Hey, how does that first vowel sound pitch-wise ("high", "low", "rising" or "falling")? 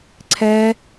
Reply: high